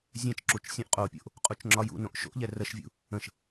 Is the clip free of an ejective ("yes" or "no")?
no